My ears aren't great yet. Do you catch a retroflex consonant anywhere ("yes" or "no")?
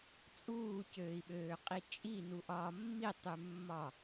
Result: no